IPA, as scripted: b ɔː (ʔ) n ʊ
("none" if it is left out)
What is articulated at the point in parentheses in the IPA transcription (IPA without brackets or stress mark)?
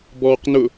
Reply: q